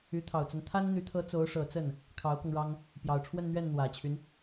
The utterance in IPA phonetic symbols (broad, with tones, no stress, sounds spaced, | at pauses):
y˧˥ t̪ʰ ɑ˨˩ ʊ̯ t͡s a˦ n t̪ʰ a˥ n n̪ y˧˥ t̪ʰ ɤ˧˥ t͡s o˧˥ ʊ̯ ʂ ɤ˨˩ t͡s ə˥˩ n | kʰ ɑ˧˥ ʊ̯ k ɤ˧ ŋ ɻ ɑ˥ ŋ | p j ɑ˨˩ ʊ̯ ʈ͡ʂʰ w ə˥˧ n n̪ ɥ ɛ˥˩ n n̪ w ä˨˩ t͡ɕʰ y˦ n